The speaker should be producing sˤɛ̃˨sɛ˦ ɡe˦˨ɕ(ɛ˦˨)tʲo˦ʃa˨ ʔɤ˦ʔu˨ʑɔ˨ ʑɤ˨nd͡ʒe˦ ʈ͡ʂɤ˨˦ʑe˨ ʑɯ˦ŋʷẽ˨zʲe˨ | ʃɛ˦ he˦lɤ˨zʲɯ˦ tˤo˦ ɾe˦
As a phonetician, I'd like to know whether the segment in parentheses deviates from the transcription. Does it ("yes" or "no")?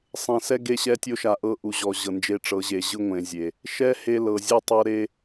yes